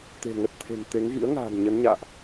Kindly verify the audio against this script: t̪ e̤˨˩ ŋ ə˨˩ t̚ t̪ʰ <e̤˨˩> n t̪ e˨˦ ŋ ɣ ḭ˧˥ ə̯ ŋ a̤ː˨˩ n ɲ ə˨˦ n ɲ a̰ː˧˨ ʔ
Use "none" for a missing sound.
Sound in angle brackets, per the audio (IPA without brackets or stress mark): e̤˨˩